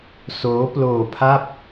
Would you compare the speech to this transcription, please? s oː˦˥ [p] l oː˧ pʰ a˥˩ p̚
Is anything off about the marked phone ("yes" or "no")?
no